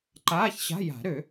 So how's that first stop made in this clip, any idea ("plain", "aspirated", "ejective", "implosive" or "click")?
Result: click